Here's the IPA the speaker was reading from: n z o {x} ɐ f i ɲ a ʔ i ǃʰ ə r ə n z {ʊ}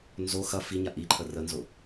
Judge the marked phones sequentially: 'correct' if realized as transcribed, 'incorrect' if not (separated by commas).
correct, correct